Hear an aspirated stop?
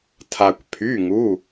yes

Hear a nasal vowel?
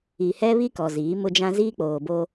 yes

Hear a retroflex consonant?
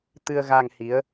no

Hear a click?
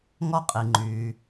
yes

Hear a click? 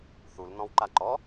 yes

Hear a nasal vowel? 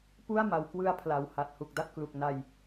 no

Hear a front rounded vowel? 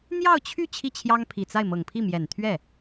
yes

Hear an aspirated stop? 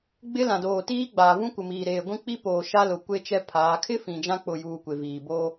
yes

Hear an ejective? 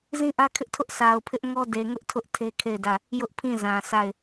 no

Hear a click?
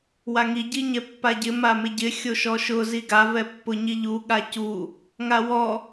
no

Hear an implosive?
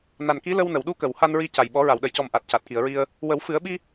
yes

